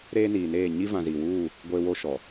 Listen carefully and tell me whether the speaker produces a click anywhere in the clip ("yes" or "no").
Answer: no